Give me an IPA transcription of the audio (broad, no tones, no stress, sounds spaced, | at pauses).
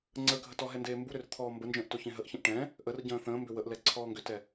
ŋ͡ǀ ə ɡʱ ə t ɔ ɦ ɛ n d eː m b u ɾ ʏ r t̪ʰ ɔː m b ə n d͡ʒ ə̃ː ʔ t o ç ẽ ɦ ə ʔ ç ə̃ ʔ ʈ ɛ̃ | ʔ ə r ɟ ə̃ː θ ə̃ː m b ʏ w ə ʔ l ɛ ǀʰ ɔː ŋ ɡ ʏ t ɛ